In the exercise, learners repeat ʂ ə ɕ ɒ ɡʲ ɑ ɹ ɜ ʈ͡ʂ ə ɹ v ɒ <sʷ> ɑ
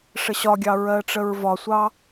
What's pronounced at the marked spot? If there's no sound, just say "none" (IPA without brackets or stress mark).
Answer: sʷ